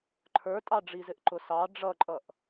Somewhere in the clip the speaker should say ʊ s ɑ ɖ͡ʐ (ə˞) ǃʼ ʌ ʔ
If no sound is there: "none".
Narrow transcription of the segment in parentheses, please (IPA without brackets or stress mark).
ʌ